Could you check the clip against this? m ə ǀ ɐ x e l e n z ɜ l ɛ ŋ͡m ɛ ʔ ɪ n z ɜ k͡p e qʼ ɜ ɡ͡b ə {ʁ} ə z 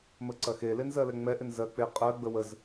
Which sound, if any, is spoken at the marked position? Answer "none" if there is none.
w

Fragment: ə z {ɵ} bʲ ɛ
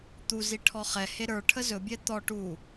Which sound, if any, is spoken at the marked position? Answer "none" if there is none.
ɵ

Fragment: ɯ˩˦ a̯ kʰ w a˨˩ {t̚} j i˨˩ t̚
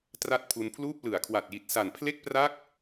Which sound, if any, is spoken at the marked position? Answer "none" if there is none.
t̚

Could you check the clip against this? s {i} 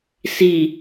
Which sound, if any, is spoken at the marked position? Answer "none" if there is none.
i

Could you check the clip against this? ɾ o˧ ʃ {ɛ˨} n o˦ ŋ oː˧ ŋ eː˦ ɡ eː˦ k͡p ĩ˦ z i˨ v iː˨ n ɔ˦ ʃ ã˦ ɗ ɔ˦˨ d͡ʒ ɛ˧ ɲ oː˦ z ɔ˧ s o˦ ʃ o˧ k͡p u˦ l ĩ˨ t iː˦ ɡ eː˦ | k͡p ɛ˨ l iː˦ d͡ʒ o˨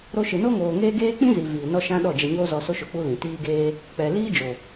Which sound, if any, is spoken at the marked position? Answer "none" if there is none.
ɨ˨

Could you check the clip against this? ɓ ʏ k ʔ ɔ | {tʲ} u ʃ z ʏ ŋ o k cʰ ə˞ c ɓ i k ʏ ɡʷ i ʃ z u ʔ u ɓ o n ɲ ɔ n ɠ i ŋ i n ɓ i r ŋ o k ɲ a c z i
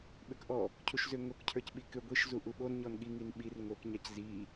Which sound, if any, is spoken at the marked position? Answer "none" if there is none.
cʰ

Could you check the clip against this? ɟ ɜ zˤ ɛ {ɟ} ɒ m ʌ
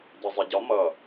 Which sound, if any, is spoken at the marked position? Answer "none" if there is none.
ɟ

